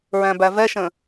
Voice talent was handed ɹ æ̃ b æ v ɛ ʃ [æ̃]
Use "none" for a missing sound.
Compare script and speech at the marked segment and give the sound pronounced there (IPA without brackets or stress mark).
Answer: ə̃